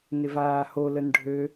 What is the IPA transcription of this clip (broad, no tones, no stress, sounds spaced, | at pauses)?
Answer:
n ɪ v aː h o l ə n ɖʱ ø